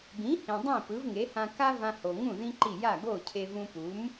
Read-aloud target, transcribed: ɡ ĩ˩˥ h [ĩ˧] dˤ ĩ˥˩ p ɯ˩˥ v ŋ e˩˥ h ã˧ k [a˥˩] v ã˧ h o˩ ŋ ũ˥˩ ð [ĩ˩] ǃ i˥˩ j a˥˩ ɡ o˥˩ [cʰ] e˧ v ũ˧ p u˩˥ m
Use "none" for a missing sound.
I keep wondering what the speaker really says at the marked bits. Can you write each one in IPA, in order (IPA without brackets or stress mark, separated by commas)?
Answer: ĩ˩, a˥, ĩ˥, cʰ